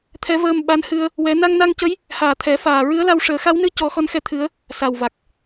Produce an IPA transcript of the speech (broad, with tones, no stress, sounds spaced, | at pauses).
t̪ʰ ɛ˧˥ v əː˧ m ɓ a˧˥ n h ɨ˧ ə̯ | w ɛ˧˥ n a˧ ŋ n a˧ ŋ c ə˧˥ j | h aː˨˩ t̪ʰ ɛ˨˩˦ f aː˨˩ ɹ ɨ˧˥ ə̯ l a˧ w ʂ əː˨˩˦ x a˧˥ w n ɨ˧ c ɔ˨˩˦ x ɔ˧˥ n x ɛ˧˥ t̪ʰ ɨ˧˥ ə̯ | s a˨˩ w v a˨˩ k̚